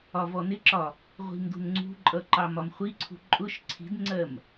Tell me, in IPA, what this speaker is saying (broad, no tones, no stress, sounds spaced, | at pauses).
ɒ v ɔ n ɪ ǁ ɒ | ʁʷ i̤ m d ṳ n ŋ͡ǀ ṳ ǃʼ ʌ ǃ ɑ m ɒ m χʷ i ǀʰ ṳ ǃʼ ʊ ʃ ǀʰ i̤ d ŋ͡ǀ ɜ m